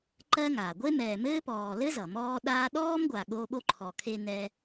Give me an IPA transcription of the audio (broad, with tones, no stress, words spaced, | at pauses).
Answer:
ǃɜ˦ŋa˩ ɡʷe˥mɛː˨mɘː˥pɔː˨ lɘ˥zʌ˩mɔː˦ ɗaː˦ɗɔː˥mɡʷa˨ ɠo˦ɓo˥ǃʰɔ˨kʰe˦ nɛ˦